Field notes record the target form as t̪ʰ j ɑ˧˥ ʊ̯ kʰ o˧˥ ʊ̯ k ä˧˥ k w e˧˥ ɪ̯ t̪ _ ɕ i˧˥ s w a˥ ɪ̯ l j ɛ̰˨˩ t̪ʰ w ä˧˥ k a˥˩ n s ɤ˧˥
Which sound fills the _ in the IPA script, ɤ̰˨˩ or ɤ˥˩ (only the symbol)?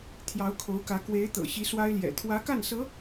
ɤ̰˨˩